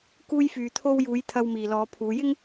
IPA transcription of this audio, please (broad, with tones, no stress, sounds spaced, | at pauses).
k uː˧ j f yː˨ t̪ʰ o˧ w j uː˨˧ j t̪ʰ ɐ˧ w m iː˨ l ɔː˨˧ pʰ uː˨˧ j ɪ˥ ŋ